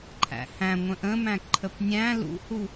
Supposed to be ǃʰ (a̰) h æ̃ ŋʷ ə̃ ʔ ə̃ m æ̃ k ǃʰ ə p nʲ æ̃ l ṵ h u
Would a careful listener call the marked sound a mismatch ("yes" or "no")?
yes